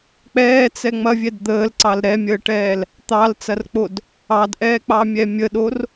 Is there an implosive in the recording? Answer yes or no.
yes